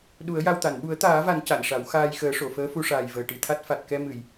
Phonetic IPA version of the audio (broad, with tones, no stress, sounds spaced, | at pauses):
ɗ u˨˩˦ ə̯ j a˧ w t̪ a˨˩˨ n ɓ u˨˩˦ ə̯ t̪ aː˨˩˦ v a˨˩˦ n c a˨˩˨ n ʂ a˨˩˦ w x aː˧ j x əː˨˩˦ ʂ o˨˩˨ f əː˧˥ f u˧ ʂ aː˨˩ j v əː˨˩ ʈ i˨˩ t̪ʰ a˦˥ t̚ f a˨˩ t̚ k ɛ˧ m ɨ˨˩˨ j